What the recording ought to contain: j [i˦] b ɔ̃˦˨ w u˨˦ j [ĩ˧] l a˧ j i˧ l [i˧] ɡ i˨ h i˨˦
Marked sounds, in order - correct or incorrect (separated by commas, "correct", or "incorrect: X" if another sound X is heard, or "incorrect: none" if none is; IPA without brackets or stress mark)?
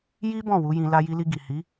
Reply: correct, correct, correct